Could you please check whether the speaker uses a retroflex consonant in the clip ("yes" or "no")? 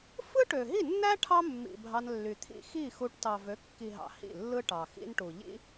yes